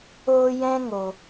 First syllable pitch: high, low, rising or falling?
high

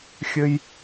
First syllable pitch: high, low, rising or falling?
high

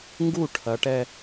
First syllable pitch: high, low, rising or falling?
falling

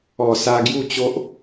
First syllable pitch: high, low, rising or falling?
low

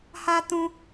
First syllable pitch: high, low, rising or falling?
high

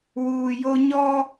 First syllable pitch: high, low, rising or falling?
low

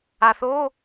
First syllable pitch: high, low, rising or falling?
low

